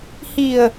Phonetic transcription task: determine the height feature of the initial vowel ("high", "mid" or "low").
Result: high